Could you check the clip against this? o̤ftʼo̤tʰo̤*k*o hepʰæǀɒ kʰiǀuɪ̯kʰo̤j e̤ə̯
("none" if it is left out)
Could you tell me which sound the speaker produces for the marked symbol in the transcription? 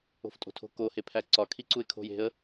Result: k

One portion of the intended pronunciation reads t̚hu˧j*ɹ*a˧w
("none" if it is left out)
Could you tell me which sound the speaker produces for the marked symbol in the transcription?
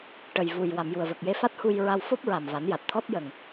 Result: ɹ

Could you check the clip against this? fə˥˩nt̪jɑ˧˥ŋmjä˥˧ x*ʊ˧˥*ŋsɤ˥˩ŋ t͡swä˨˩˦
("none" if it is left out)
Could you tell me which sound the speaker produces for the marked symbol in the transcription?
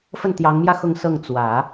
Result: ʊ˥˧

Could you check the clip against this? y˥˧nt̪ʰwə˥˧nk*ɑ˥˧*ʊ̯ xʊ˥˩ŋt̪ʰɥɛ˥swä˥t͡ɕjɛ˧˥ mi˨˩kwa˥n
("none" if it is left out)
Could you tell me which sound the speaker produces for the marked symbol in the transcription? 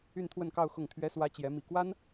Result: ɑ˥˧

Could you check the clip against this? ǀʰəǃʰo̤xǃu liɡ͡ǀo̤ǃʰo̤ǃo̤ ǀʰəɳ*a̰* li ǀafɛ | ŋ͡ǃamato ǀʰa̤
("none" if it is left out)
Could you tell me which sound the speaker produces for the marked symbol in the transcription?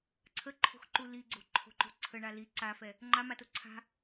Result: a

